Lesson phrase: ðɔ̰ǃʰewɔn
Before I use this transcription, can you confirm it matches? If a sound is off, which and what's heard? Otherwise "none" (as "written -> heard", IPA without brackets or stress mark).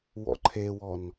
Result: ð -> w